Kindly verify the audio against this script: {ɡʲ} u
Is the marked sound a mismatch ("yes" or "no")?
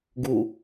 yes